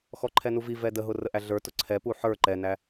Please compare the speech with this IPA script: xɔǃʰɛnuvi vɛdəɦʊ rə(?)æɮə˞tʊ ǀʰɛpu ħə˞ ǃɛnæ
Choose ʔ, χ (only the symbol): ʔ